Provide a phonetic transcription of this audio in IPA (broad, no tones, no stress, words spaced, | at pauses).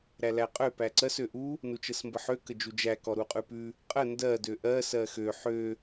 ɾælæqʼø pæǀɜs øʔu | nut͡ʃəsmbəħø kəd͡ʒud͡ʒæ kɔɾuqʼʉpʉ | qʼə ndɜ døʔɜ sɜxø ħø